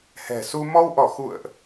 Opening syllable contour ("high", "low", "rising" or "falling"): low